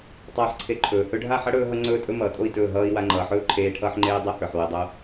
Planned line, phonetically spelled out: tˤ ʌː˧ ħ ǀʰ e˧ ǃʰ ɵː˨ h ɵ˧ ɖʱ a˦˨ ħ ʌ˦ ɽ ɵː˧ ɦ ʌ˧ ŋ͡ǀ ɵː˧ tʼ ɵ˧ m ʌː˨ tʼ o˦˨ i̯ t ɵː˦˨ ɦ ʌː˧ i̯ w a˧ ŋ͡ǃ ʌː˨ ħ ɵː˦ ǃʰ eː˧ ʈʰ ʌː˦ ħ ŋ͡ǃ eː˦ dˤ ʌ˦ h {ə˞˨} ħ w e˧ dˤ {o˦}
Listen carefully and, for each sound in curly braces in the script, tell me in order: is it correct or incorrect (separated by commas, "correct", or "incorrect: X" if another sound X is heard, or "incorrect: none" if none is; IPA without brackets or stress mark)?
correct, correct